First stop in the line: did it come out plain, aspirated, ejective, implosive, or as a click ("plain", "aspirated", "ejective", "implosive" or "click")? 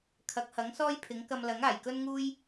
aspirated